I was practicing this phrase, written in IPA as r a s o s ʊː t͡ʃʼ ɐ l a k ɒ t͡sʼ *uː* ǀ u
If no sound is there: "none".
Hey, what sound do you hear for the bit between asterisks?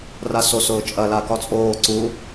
oː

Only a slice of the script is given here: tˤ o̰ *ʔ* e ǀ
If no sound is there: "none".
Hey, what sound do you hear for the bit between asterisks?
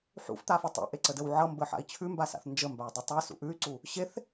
ʔ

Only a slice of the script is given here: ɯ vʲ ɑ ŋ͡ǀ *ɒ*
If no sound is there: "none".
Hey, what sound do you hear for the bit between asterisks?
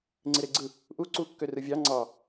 ɑ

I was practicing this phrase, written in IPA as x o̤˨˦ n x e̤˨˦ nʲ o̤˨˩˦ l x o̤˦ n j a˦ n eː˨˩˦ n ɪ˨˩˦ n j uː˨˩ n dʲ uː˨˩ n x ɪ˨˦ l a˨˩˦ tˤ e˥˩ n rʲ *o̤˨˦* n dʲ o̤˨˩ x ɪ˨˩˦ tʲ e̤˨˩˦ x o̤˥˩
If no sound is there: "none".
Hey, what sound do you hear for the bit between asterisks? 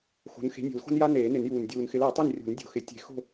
o̤˨˩˦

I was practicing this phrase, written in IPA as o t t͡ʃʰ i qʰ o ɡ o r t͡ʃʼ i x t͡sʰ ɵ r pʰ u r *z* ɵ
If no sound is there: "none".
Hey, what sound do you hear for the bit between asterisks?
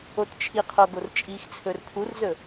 z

